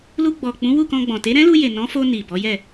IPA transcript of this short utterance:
l u˧ ɡ͡b ɔ˨ k͡p ũ˨˦ w u˦˨ k ɔ̃˧ ɡ͡b ɔ̃˨ t e˨˦ ɾ ɛ̃˦ l u˧ j e˨ n ɔ̃˨˦ f o˧ n i˨ b ɔ˨˦ j ɛ˦˨

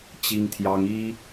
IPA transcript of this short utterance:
t͡ɕ i˥ ŋ t̪ʰ j ɑ˥ ŋ i˥

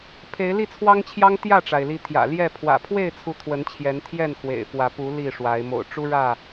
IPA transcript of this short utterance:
pʰ e˨˦ ɪ̯ l i˥˨ t͡sʰ w ɑ˦ ŋ t͡ɕʰ j ɑ˦ ŋ t̪ j ä˥˨ ʈ͡ʂ a˩ ɪ̯ l i˨˦ t̪ʰ j ä̰˨˩ l j ɛ˥˨ pʰ w ä̰˨˩ pʰ w e˥˨ ɪ̯ t͡sʰ u˨˦ t̪ʰ w ə˨˦ n t͡ɕʰ j ɛ˨˦ n t̪ʰ j ɛ˥˨ n x w ḛ˨˩ ɪ̯ f w ä˨˦ p u˨˦ l i˥˨ ʂ w a˨˦ ɪ̯ m o̰˨˩ ʊ̯ ʈ͡ʂ u˦ ɻ ä˥˨

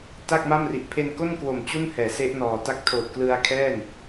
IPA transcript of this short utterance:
t a˥˩ k̚ m a˥˩ m r i˨˩ ʔ pʰ e˧ n k o˥˩ n k w o˨˩ m t͡ɕ u˥˩ n h ɛː˩˦ s e˦˥ ʔ n ɔː˨˩ t a˥˩ k̚ tʰ oː˨˩ t̚ k l ɯ˧ a̯ kʰ ɛː˥˩ n

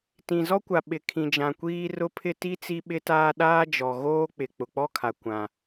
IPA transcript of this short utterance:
t ĩ˨ z ɔ˦ kʷ a˨ ɓ ɪ˨ kʰ ĩ˨ d͡ʒ ã˨ kʷ iː˦ r ʊ˦ pʰ ɪ˦ t i˦ t͡s i˦ ɓ ɪ˦ t aː˦ ɗ aː˦ d͡ʒ ɔ˨ ɣ oː˦ k͡p ɪ˨ k͡p ʊ˨ k͡p ɔ˦ kʰ a˨ kʷ ã˦

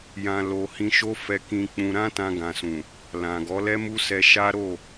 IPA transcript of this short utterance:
j ã˨ l o˨ h ĩ˧ ʃ o˦ f ɛ˧ k ĩ˧ k͡p ũ˧ ɾ ã˦ t ã˧ ɡ ã˨ s ũ˨ | l ã˨ ɡ ɔ˨˦ l ɛ˦ m u˦ s ɛ˧ ʃ a˦ ɾ o˦˨

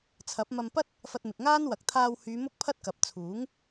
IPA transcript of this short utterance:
t͡sʰ ɐ˨˥ p̚ m ɐ˧ m p ɐ˥ t̚ | f ɐ˧ t̚ m ɪ˨ k̚ ŋ aː˥ n w ɐ˨˥ k̚ t̪ʰ aː˧ w h yː˨˧ m ʊ˥ k̚ pʰ ɐ˥ t̚ k ɐ˨˥ p̚ t͡sʰ uː˨˥ ŋ

